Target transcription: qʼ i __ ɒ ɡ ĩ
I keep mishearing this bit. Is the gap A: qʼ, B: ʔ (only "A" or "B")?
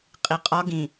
A